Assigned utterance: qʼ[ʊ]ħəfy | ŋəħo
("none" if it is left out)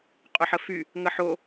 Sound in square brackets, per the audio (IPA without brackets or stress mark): ʊ